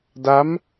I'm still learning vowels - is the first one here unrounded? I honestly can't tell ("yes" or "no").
yes